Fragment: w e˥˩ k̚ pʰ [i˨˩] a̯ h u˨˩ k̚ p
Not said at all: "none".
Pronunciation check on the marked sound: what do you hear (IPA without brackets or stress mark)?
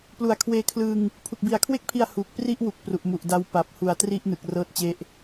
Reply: i˧